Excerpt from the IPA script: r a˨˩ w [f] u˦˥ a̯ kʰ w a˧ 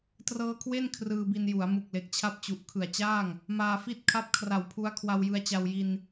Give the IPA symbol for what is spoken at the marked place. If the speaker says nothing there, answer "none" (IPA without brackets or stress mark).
pʰ